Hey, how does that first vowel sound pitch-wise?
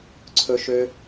high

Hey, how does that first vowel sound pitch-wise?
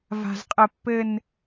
high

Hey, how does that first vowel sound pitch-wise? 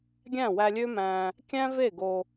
falling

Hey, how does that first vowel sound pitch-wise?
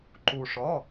low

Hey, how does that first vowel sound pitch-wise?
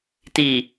low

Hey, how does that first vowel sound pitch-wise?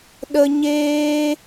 high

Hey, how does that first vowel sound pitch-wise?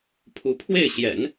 rising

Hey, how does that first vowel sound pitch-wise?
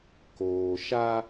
low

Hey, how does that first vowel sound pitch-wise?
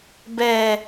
low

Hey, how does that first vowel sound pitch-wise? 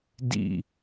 falling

